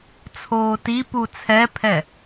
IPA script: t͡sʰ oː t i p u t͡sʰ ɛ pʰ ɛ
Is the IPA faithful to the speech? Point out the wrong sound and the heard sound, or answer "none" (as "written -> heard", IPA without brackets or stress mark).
none